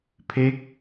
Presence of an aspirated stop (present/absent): present